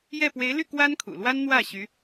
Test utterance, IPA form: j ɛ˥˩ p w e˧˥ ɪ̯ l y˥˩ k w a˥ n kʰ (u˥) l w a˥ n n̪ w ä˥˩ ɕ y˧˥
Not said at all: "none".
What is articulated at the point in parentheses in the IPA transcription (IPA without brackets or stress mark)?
ṵ˨˩